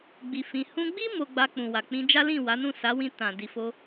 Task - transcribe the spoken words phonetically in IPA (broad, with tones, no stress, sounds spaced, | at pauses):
ɡ͡b i˧ f ĩ˧ h ũ˧ ɡ͡b i˦ m o˧ ɡ͡b a˧ k͡p ũ˨ w a˨ k͡p ĩ˧ d͡ʒ a˦ l ĩ˦˨ w a˨˦ n ũ˦˨ s a˨˦ w ĩ˧ t ã˨ d i˨ f o˧